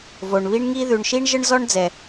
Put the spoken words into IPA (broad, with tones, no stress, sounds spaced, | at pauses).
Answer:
v o˩ ɳ β i˥ ɳ ŋ i˥ ð ʉ˩ ɳ ʃ i˥ ɳ ʒ ə˥ ɳ z ɔ˥ ɳ d͡z ɛ˩